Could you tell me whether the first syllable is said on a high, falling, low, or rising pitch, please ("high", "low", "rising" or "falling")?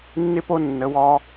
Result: high